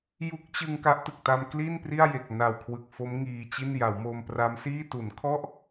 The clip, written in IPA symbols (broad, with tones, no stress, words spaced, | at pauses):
ju˦˥k̚t͡ɕɯ˧ŋ ka˦˥ʔtɯ˨˩k̚ ta˧mkli˥˩npri˥˩a̯ je˨˩k̚na˨˩wkʰwɯ˨˩k̚ fo˦˥m ŋiː˧t͡ɕi˥˩n ja˩˦wmo˧mpra˦˥msiː˥˩ tu˩˦nkʰɔ˥˩ʔ